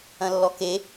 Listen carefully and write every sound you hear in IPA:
ɐ̃ lː ɔ k e

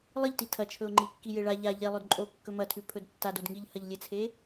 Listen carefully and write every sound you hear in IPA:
lˠ ɨ ʎ t i tʰ ɐ t͡ʃʰ ɵ ʊ̯ ŋ͡ǃ i kː i j e ɭ a ʎ a ʎ e lˠ ɵ d ǃʼ o kː ɵ m ɐ tʰ ʉ pʰ ɵ d tː a d o d ŋ i ʎ h ɐ ʎ lʲ e t͡sʰ e

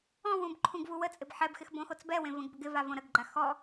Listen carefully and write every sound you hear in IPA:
ɔ̃ w ũ b ǃʰ ũ ɡ v u w ə t͡sʼ ɪ b ħ ɛ b x ɪ x b õ x o t͡s b ɛ w ẽ v ə̃ ɡ b ʏ ɡ ɪ v a v õ ɾ ə ɡ ɡ͡ǃ a x ɔ

